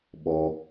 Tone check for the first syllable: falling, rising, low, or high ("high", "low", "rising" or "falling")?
high